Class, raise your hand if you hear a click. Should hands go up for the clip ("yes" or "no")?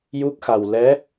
no